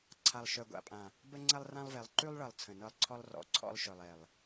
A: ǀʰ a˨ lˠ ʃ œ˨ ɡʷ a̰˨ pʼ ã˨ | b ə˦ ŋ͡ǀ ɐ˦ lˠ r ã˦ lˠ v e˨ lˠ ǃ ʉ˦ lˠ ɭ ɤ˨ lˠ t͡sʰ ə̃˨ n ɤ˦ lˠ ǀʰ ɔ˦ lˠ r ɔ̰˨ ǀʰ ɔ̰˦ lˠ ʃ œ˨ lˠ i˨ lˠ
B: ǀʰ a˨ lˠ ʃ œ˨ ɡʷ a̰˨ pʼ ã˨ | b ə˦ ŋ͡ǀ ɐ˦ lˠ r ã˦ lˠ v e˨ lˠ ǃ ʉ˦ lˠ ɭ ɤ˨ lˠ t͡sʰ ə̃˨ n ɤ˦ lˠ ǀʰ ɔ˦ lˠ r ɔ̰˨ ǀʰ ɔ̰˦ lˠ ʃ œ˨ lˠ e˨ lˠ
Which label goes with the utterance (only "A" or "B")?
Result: B